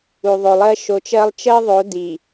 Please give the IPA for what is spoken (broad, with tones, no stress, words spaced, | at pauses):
u˨ðˤo˨lˠɜ˦ ʃo˨˦t͡ʃɜ˦lˠ t͡ʃɜ˦ðˤo˨˦ di˨